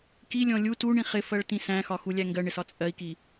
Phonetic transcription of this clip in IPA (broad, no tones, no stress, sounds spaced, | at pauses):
k i lʲ ɔ̃ lʲ u t u ɳ ĩ χ ɪ f ɜ ɭ t ĩ s æ̃ x ɒ x u lʲ æ ŋ ɡ ɜ ɳ ɪ s ɒ t͡sʼ ɜ i̯ k i